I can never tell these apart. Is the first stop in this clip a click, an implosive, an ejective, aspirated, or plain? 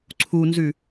click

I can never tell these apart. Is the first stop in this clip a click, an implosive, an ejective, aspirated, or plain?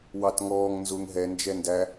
plain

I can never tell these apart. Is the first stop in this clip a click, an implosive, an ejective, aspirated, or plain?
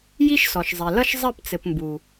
plain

